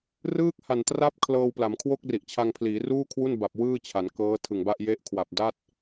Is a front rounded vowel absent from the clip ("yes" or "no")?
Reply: yes